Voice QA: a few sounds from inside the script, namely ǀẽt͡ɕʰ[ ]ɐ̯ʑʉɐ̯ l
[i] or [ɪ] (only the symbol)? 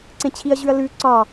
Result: i